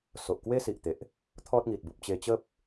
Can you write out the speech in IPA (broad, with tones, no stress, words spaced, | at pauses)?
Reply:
so˨ʔkwe˦si˨ʔt̪e˨ʔ | t̪ʰɔ˦t̚ŋi˨t̚ bu˨p̚t͡ɕe˧t͡ɕə˦p̚